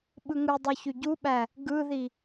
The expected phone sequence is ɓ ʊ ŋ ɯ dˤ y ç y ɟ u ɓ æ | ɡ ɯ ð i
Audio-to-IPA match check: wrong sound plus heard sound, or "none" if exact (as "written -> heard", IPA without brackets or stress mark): ʊ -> ɯ